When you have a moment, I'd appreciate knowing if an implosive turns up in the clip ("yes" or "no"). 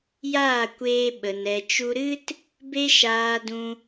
yes